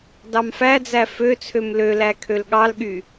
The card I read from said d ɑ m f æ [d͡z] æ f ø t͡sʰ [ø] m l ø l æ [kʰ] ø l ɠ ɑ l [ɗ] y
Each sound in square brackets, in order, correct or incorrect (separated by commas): correct, correct, correct, incorrect